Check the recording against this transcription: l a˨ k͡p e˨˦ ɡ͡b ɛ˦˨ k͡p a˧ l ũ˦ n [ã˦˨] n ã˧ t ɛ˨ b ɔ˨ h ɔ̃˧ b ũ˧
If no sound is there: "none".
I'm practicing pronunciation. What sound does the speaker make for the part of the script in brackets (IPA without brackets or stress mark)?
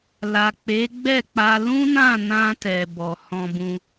ã˦˨